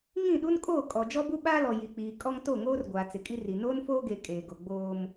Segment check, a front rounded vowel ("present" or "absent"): absent